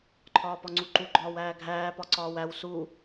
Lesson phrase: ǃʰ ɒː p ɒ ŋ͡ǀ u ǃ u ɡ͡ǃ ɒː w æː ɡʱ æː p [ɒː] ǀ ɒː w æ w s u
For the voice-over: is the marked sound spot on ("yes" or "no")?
no